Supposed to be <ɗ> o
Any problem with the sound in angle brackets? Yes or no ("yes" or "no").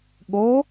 yes